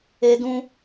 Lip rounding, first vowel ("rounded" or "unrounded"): unrounded